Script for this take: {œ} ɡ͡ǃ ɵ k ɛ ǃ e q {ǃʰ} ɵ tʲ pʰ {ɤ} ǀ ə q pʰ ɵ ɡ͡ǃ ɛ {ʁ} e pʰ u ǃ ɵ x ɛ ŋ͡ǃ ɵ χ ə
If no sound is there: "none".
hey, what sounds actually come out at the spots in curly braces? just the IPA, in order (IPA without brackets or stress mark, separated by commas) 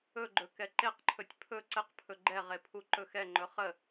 ɵ, ǃʰ, ɵ, ʁ